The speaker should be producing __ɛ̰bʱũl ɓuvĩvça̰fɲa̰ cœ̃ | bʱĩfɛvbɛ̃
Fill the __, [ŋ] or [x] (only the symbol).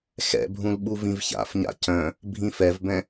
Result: x